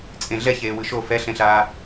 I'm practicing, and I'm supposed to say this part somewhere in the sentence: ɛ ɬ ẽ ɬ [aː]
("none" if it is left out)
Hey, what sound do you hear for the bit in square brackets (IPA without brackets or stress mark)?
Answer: aː